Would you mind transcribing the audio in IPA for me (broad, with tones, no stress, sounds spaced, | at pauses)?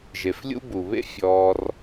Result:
ʒ e˩ f lʲ ṵ˦ b u˩ β ḛ˦ fʲ ɔː˨ r